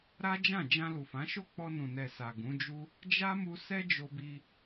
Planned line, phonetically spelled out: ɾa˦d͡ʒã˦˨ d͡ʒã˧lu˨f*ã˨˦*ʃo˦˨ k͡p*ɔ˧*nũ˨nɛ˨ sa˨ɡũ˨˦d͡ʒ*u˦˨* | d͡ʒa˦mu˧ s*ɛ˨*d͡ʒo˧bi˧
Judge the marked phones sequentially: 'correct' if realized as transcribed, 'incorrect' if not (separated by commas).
correct, correct, incorrect, incorrect